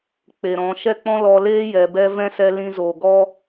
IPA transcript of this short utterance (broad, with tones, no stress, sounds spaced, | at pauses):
k͡p e˨ ɾ ɔ̃˨˦ ʃ ɛ˦ k͡p ɔ̃˦ l ɔ˧ l eː˦ j ɛ˨ b ɛ˧ v ɛ̃˦ s ɛ˧ l ĩ˧ z oː˨ ɡ ɔ˦